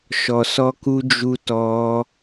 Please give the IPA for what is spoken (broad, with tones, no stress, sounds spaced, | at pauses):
ʃ ɔ˧ s ɔ˦ k u˦ d͡ʒ u˦ t ɔ˦